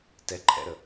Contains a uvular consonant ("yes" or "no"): no